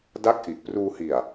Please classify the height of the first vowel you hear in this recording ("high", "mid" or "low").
low